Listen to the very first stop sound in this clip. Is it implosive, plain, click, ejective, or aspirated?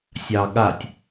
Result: implosive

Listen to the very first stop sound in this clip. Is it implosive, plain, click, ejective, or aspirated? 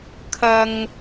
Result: aspirated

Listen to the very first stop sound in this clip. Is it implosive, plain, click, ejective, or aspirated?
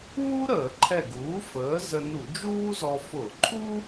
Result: click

